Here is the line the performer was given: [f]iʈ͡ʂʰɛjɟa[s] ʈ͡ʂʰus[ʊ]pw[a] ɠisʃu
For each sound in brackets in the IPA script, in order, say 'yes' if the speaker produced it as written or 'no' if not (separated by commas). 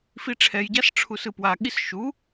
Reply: yes, yes, no, yes